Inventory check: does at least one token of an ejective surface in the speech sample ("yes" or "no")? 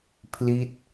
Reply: no